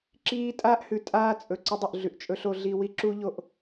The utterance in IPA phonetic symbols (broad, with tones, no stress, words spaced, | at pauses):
ǁiː˦ tʼaː˦ʔhʉ˨tʼaː˦ t͡sʼɵ˨ ǀɐ˦dˤɵ˦˨ʔɮʉ˨ʔ t͡ʃʼɵ˦ ɬo˦ɮi˦ wi˦ǁu˦ʎo˦ʔ